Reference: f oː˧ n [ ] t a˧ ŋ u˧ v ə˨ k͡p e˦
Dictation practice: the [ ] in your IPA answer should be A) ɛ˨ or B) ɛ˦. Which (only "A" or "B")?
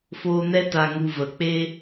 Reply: B